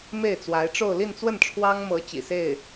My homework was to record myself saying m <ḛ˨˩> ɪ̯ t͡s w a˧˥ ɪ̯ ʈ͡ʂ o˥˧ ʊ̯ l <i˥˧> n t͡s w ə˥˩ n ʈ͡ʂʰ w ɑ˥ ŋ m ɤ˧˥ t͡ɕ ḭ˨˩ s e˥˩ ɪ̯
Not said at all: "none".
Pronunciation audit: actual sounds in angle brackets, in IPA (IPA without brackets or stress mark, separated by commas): e˥˩, i˥˧